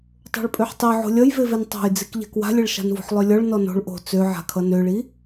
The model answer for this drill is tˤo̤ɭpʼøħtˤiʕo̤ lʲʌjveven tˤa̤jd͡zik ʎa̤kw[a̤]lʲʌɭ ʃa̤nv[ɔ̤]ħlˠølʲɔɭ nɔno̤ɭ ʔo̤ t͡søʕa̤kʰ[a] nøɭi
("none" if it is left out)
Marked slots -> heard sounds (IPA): a̤, o̤, ʌ

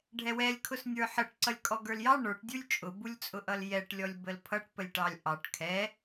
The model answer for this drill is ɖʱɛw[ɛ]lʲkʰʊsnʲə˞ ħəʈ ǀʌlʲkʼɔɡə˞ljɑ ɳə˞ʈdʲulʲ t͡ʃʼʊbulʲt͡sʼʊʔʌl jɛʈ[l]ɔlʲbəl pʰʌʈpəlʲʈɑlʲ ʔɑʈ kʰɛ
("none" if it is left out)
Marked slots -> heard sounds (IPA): ɛ, lʲ

